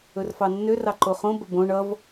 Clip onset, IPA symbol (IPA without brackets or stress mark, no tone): ɵ